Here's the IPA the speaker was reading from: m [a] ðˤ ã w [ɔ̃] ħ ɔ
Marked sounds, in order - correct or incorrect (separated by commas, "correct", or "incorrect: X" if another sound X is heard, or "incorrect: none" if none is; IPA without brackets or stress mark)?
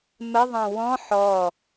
incorrect: ə, correct